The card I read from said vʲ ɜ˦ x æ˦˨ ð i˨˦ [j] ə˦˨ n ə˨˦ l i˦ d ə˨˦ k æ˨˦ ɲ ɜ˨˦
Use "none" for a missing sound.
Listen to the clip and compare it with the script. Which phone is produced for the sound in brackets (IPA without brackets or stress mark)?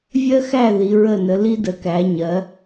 ɹ